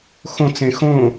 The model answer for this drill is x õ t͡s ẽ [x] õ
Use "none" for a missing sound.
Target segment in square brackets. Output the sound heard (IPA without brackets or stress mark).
x